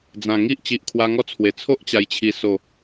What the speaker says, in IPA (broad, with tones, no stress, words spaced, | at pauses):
d͡zã˨˩ŋi˦ʔ t͡ɕi˨ʔkʰwa˧ŋɔ˦t͡sʰwe˨˩ t͡sʰo˦ʔt͡ɕa˨˩jt͡ɕʰi˨˩so˨˩